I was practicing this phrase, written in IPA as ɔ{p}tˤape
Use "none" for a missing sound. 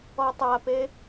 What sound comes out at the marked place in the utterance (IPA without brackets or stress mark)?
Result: none